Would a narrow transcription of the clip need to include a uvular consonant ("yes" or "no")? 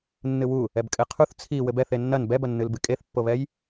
yes